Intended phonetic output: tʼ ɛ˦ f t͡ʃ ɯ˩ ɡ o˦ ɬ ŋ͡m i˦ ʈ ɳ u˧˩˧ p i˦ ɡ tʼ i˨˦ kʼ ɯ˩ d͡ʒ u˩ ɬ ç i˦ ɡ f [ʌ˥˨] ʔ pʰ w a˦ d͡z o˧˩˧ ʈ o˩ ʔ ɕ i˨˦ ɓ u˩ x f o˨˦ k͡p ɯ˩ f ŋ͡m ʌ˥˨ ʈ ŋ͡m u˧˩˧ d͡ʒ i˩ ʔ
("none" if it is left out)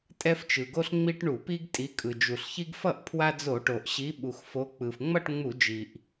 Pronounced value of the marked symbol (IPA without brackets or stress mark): ʌ˥˨